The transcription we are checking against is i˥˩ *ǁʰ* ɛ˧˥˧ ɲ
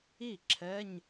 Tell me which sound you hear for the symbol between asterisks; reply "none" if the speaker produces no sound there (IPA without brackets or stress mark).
ǁʰ